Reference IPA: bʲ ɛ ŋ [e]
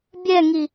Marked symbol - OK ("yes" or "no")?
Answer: no